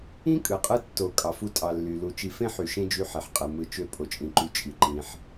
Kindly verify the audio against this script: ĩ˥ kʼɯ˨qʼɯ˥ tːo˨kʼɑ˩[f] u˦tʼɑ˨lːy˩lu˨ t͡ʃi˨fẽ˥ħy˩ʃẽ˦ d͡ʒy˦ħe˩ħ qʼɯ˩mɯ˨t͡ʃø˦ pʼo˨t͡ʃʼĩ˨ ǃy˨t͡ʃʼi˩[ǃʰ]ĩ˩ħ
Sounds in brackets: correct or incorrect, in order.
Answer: correct, incorrect

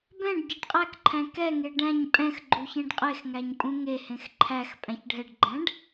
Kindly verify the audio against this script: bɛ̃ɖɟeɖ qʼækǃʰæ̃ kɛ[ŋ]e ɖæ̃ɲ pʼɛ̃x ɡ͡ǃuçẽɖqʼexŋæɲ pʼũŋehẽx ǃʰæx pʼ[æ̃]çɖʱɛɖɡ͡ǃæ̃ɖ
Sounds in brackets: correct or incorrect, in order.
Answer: correct, correct

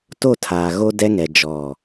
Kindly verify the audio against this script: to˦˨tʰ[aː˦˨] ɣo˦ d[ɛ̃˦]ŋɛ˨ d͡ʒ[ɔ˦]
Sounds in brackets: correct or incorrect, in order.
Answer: incorrect, incorrect, incorrect

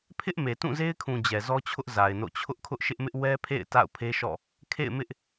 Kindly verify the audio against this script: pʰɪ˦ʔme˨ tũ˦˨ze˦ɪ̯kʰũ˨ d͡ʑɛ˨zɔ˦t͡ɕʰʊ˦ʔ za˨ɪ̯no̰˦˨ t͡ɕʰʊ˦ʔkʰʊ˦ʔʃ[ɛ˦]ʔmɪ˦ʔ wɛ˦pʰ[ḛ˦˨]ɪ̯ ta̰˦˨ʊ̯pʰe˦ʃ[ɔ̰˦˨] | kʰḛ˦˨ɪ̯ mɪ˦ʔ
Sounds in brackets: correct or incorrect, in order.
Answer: incorrect, correct, correct

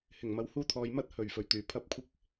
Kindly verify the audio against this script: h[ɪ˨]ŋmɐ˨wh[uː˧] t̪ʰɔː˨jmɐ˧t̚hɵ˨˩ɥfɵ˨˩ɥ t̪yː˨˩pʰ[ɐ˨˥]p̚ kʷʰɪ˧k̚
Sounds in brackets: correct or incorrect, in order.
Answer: incorrect, correct, incorrect

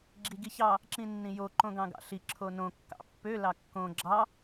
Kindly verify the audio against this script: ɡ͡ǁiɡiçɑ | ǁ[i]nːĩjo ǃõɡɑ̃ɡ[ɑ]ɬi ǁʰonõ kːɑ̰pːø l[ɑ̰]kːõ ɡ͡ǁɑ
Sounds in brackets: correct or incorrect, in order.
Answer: incorrect, incorrect, incorrect

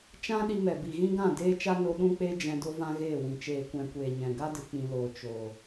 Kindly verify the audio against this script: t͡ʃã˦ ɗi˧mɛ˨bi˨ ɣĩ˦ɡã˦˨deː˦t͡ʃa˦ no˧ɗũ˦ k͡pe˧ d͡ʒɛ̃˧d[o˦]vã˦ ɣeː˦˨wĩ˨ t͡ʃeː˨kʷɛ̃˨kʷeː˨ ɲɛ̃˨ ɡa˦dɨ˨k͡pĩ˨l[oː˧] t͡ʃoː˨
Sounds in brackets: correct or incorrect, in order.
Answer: correct, incorrect

